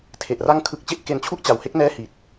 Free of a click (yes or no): yes